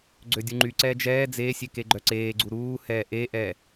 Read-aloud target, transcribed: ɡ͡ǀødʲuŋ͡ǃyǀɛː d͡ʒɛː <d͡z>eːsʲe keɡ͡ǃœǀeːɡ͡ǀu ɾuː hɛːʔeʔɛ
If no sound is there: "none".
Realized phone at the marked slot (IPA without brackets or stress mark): d͡z